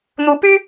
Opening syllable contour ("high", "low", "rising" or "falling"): rising